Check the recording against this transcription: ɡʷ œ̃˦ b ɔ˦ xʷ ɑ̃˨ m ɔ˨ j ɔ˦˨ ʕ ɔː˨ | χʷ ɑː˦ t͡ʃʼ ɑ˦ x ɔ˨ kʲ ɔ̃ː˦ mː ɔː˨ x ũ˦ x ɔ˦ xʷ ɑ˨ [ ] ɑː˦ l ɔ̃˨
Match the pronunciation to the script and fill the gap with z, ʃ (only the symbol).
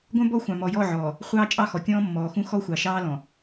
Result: ʃ